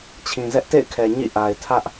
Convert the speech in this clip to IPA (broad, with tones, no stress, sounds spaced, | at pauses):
t͡ɕʰ ĩ˨ z ɛ˦ ʔ t ḛ˦˨ ɪ̯ kʰ ɛ˨ ɲ ḭ˦˨ ʔ a˨ ɪ̯ tʰ ä˦ ʔ